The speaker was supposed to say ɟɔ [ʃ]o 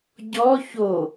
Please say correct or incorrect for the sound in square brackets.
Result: incorrect